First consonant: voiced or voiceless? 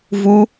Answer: voiced